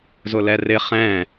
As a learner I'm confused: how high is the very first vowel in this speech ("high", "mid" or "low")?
high